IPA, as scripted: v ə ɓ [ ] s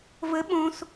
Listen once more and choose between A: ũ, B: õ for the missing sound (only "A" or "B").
B